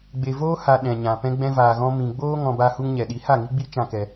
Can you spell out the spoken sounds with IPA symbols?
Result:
ɡ͡b e˨ v oː˦ h a˨ ɗ ɛ̃˨ ɲ ã˨ p ɛ̃˧ ɡ͡b ɛ̃˧ v aː˨ ɣ ɔ̃˧ m ĩ˨ ɡ͡b oː˦ ŋ ɔ̃˧ b a˦ h u˦ ŋ ɲ ɛ˨ ɗ i˨˦ h a˦˨ ŋ i˦ ɡ͡b i˦ t͡ʃ ã˦ k ɛ˧

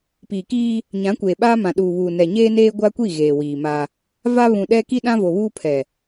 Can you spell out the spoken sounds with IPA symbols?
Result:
p iː˨ k iː˦ | ɲ ã˨˦ kʷ eː˨ ɓ aː˦ m ã˨ ɗ uː˨ β uː˨ n ɛ˨ ɲ eː˦ n eː˦ ɡʷ a˦ kʷ i˦˨ ɣ eː˨ w iː˨ m a˦ | v a˦ β ũ˨ ɗ ɛ˦ k i˦ ɗ ã˦ v o˨ β uː˦ pʰ ɛ˨

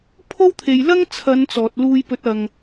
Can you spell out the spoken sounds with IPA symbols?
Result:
pʰ o˥ w t̪ʰ e˨ j l ɐ˥ ŋ t͡sʰ ɐ˨˧ n t͡s ɔː˨ t̚ l uː˧ j p ɵ˨˥ t̚ ɐ˨ ŋ

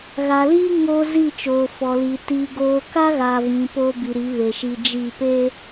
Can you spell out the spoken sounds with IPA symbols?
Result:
ɣ a˨ l iː˦ ŋ oː˦ z i˦˨ t͡ʃ oː˨ f ɔ˨ l i˨ t iː˨ ɡ oː˨ k a˦ ɣ a˨ v ĩ˨˦ p o˦ b i˨ ɾ i˨˦ β e˨ ʃ i˨ d͡ʒ i˦˨ p e˦

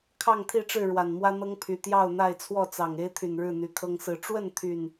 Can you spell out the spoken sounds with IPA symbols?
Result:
kʰ ɑ˥˨ ŋ t̪ʰ i˥˨ ʈ͡ʂ ɻ̩˥˨ ɻ w a˨˩ n m w ä˦ n̪ ɤ˦ ŋ pʰ y˨˩ t̪ j ɑ˥˨ ʊ̯ n̪ a˥˨ ɪ̯ t͡sʰ w ɔ˥˨ t͡s ɑ˨˩ ŋ e˦ ɪ̯ t̪ʰ y˨˩ n ɻ ɻ̩˥˨ n̪ y˨˦ kʰ ɤ˦ ŋ s ɹ̩˥˨ ʈ͡ʂ w ə˥˨ n t̪ʰ y˨˩ n

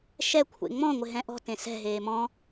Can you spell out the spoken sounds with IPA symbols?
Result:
ʃ ɛ kʷʰ ḛ ŋ͡m ɔ̃ ŋʷ ɪ ɦ ɛ̃ ʔ ɔ̤ t ẽ s ɛ̤ ɦ eː m ɔ̃

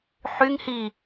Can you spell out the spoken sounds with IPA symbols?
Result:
ħ y ŋ h i

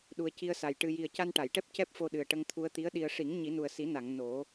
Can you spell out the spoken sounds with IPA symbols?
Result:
ɗ u˨˩ ə̯ c i˧ ə̯ s a˨˩ j ʈ ɨ˧ j i˨˩ ə̯ c a˧ n ʈ a˨˩˨ j ʈ ɛ˦˥ p̚ c ɛ˦˥ p̚ f o˧ ɗ ɨ˨˩ ə̯ ʈ ə˧ ŋ t̪ʰ u˧ ə̯ t̪ i˧˥ ə̯ ɗ i˧ ə̯ ʂ i˨˩˦ ŋ ɲ i˨˩˦ n u˨˩ ə̯ s i˨˩˦ n a˨˩˨ ŋ n o˨˩˦

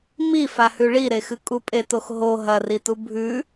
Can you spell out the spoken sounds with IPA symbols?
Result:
m i f a h ʉ ɭ i ɾ e x ɨ kʼ u pʼ e t o x ɦ o ɦ ɐ r i t u bʱ ʉ

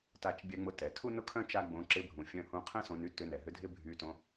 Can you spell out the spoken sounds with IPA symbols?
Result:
t a˧ t͡ʃ bʲ ɛ˧ ŋ͡m ʊ˧ t ɛ˩ tʰ u˥ n ʊ˥ kʰ œ̃˥ t͡ʃ a˥ ɡ͡b õ˧ ǁ ɪ˧ bʱ ũ˩ fʲ œ̃˧ h ũ˧ qʰ ɛ̃˥ s õ˧ n y˥ t ʏ˧ n ɛ˩ ɦ ʏ˧ dʱ ɪ˥ bʱ y˧ t õ˧

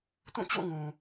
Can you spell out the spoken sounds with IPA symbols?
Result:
t ũ˦˨ t͡ɕ o̰˦˨ ŋ ũ˨

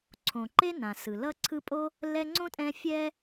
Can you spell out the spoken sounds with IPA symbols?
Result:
ǀʰ õ˩ ǃ e˥ n ã˩ s ɯ˩ l ʌ˦ ǀʰ ɯ˦ pʼ o˥ | l ɛ˦ ŋ͡ǀ õ˥ tʼ ɛ̃˥ fʲ ɛ˥

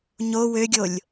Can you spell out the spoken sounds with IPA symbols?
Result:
ɲ o w ø ɡʲ o lʲ

